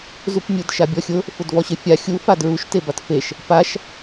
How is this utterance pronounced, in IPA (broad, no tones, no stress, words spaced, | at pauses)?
zupmʲʊd ʃabʲɔxʲʊ | fʊdvɔɕɪfʲa xʲu fadɹuʃ tebatfeʃ | paʃ